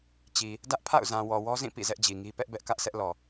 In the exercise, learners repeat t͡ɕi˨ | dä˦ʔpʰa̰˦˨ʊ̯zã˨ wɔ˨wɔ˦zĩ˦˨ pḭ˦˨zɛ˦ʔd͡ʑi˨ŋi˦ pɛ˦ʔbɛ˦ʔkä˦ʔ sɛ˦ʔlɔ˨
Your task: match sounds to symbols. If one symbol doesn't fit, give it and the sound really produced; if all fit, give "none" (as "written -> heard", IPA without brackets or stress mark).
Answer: none